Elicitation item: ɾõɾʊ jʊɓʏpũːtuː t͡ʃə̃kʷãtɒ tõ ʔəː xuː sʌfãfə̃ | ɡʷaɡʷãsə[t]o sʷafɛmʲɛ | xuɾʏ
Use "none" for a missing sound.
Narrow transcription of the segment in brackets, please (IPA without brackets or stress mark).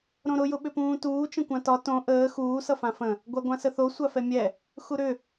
θ